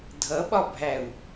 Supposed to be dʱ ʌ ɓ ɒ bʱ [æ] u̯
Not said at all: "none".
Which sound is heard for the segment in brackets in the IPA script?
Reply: æ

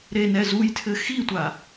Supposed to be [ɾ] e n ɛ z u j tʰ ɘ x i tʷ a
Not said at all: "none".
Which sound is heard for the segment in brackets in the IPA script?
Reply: ɾ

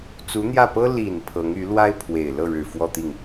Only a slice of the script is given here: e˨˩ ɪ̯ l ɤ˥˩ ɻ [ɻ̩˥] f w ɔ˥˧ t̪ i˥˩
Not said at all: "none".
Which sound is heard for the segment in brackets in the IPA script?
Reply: ɻ̩˨˩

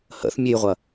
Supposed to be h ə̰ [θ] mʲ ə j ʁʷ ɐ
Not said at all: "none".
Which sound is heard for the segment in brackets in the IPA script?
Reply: θ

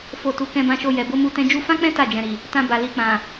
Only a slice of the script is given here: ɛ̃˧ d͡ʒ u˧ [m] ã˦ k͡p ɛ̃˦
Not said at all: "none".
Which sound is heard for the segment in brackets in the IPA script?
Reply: f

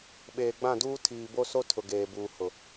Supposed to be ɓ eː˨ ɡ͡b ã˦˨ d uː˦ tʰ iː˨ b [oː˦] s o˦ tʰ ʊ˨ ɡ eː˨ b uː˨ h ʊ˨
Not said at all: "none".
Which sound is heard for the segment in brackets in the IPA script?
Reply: o˦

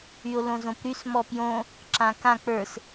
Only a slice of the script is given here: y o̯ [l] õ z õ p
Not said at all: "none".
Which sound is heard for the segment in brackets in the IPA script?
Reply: l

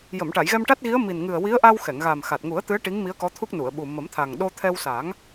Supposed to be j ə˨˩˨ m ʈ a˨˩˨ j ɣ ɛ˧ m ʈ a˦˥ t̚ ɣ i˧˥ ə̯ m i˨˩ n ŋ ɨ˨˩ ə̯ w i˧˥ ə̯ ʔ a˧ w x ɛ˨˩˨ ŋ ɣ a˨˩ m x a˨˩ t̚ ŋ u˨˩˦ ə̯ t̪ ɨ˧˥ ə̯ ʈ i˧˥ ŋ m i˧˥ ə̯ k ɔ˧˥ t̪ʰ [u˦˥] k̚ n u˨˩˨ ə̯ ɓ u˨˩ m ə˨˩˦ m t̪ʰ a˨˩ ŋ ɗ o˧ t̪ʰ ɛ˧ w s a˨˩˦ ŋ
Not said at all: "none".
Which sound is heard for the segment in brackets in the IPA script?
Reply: u˦˥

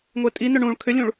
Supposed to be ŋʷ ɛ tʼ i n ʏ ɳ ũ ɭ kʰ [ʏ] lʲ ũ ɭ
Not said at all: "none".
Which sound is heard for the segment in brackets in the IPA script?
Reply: ʏ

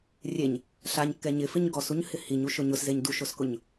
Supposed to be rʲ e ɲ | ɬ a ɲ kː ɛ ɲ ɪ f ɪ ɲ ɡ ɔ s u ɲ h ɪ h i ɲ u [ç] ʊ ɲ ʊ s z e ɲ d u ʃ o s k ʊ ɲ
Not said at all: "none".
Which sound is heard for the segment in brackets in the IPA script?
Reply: ʃ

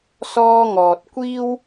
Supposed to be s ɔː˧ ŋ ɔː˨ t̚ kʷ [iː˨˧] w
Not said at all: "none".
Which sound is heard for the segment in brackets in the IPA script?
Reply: iː˥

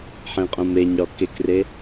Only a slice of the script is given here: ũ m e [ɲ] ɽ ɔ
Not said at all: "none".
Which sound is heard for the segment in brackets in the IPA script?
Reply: ɲ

